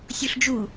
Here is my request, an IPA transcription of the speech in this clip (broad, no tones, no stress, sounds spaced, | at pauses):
sʲ u ɬ d͡ʒ u